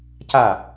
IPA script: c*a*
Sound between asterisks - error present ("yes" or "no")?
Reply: no